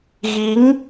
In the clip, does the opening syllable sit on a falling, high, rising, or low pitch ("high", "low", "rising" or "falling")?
rising